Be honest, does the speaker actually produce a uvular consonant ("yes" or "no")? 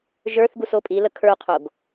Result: yes